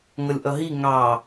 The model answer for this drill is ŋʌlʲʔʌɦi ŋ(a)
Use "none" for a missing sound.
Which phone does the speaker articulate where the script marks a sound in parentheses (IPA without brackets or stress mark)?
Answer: ɑ